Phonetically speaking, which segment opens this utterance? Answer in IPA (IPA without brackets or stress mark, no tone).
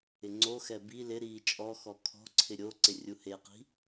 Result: ɪ